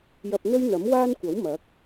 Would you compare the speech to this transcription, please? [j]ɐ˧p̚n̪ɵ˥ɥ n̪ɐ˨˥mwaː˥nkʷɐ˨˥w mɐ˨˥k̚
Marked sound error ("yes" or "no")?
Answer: no